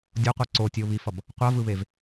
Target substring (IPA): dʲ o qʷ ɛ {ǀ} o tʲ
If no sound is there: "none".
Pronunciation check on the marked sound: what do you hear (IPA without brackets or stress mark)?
ǀ